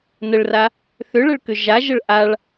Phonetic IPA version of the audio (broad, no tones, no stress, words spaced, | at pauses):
nəɭra | θʏɭəɭkʏ ʒaʒəɭ ʔaɭ